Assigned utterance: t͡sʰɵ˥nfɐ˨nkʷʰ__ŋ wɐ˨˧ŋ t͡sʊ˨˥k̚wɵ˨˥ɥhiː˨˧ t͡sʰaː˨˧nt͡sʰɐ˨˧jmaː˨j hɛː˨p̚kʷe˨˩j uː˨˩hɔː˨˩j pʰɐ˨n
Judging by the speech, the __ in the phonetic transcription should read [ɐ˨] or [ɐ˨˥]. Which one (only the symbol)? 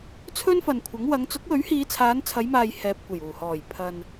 ɐ˨˥